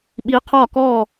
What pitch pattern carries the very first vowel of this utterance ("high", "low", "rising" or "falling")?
rising